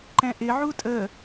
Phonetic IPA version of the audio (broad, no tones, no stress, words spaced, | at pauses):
ǃɛ̃ʔɪ ʕutʼə